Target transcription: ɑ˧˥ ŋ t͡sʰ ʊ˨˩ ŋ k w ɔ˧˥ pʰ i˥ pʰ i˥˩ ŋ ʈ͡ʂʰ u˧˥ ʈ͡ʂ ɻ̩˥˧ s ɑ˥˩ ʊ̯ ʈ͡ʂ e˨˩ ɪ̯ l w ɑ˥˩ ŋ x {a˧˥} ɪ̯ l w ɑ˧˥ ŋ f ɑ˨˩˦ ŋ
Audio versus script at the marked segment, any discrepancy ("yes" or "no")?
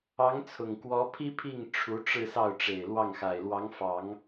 yes